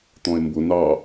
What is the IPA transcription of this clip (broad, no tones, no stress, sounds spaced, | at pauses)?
t̪ ɔ̃ e̯ m b ʊ n ɑ